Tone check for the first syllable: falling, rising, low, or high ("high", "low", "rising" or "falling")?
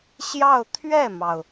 falling